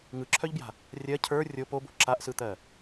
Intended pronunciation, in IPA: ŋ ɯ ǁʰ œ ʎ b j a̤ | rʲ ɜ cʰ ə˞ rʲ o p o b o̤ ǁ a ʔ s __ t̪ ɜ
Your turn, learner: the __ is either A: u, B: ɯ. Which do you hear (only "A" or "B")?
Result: B